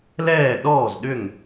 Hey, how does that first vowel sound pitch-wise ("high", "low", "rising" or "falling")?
falling